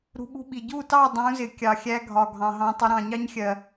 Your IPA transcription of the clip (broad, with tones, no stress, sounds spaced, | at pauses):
ɾ ṳ˧ ɓ ṳ˦ ɓ i˨ ɟ u˦˨ t ɑ˦˨ dˤ ũ˨˦ z ɪ˨ kʲ ɑ˨ xʲ æ˧ ɡʱ ɒ˨ ɡʱ ɑ̃˨ ɦ ɑ̃˧ tˤ ɪ˧ ɾ ɑ̃˨ ɲ ɑ˦ ɲ xʲ ɜ˨